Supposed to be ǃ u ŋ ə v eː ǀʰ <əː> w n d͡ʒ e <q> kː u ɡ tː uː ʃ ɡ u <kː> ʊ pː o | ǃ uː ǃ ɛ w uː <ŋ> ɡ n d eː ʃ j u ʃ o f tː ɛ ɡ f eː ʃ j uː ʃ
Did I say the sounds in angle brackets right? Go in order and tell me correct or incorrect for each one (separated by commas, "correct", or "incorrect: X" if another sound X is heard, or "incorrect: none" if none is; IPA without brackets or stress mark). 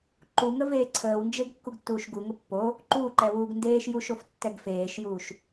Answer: correct, incorrect: ɡ, incorrect: ŋ, incorrect: none